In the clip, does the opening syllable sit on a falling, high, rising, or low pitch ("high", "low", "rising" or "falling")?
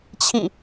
falling